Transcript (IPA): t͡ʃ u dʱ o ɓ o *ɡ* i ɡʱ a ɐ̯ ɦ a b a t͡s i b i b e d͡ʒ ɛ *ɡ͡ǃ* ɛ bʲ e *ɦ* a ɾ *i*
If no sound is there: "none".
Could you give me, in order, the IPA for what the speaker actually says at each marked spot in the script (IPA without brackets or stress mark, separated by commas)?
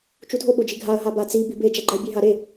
d͡ʒ, ɡ͡ǃ, ɦ, e